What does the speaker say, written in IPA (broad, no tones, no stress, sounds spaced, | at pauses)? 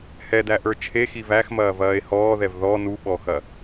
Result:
h ɛ d æ ʔ ə˞ t͡ʃʰ e x i v æ x m ɐː v ɐː e̯ h ɔː ð ɛ v ð ɔ n u ɓ ɔ x ɐ